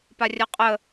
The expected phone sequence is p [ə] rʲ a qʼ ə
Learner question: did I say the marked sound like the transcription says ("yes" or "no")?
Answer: no